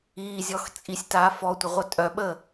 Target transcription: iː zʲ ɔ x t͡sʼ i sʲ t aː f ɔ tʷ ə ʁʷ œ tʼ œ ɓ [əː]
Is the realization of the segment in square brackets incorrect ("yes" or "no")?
no